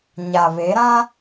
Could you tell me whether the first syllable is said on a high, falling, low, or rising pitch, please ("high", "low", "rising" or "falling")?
low